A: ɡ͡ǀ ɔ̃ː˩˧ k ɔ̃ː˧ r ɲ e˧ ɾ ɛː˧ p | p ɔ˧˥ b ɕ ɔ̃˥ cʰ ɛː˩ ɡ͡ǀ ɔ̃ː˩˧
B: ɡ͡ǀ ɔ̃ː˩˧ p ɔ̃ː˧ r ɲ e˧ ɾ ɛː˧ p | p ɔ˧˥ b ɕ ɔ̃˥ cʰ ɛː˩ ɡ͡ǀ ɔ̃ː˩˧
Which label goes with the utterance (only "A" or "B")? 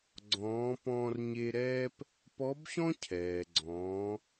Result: B